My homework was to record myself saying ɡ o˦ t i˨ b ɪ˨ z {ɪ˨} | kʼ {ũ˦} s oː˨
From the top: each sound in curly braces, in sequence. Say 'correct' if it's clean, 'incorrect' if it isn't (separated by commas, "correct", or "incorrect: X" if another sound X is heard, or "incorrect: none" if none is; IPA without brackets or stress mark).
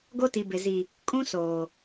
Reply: incorrect: i˨, correct